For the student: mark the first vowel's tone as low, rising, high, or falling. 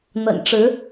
low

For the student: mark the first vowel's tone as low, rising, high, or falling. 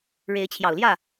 rising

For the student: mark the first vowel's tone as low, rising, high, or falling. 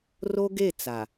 high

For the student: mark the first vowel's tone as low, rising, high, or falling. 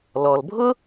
low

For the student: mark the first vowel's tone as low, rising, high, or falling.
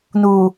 low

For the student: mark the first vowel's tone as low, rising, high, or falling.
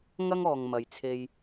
high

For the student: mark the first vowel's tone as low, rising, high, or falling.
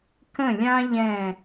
falling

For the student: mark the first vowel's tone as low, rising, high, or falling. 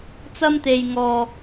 high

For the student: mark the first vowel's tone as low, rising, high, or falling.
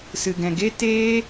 low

